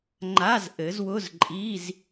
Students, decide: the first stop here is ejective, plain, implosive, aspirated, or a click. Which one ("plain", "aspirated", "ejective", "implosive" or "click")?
click